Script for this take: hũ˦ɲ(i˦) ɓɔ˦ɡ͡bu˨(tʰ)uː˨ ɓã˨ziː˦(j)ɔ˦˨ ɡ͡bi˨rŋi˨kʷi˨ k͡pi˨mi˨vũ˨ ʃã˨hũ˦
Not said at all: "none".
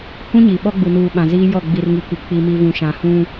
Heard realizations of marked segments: i˨, n, j

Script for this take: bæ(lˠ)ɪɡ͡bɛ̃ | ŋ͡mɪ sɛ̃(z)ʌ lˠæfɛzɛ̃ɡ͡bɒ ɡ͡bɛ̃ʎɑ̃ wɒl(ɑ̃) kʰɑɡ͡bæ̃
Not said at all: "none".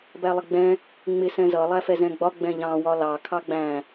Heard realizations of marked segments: lˠ, z, ɑ

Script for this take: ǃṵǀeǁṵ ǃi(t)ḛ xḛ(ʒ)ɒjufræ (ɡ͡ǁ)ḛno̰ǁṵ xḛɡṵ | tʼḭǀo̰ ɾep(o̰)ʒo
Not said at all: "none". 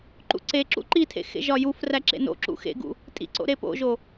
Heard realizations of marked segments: tʰ, ʒ, ǁ, o̰

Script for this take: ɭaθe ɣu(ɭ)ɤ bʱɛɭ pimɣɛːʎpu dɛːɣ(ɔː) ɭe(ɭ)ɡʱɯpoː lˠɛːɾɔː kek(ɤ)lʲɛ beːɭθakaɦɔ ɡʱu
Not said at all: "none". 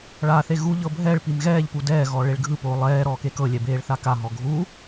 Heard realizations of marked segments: ʎ, ɔː, ɭ, ɤ

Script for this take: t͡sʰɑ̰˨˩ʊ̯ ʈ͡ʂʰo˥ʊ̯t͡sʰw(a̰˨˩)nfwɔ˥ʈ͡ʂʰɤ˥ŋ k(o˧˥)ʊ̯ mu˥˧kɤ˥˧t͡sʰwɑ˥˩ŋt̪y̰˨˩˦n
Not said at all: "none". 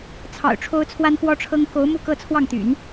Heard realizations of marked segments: a˥, o˧˥

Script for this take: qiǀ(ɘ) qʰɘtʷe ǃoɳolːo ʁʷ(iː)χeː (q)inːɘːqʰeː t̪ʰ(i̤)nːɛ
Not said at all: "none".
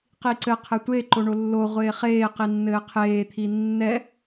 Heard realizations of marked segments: ɘ, eː, q, i

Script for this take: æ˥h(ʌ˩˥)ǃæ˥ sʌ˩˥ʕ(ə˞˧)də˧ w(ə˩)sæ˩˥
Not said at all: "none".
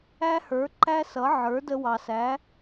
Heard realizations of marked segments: ə˞˩˥, ə˞˩˥, ɑ˩

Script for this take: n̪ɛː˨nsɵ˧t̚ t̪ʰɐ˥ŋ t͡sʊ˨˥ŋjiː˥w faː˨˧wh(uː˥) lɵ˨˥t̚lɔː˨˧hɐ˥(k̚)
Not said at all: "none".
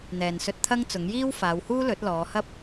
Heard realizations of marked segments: uː˥, p̚

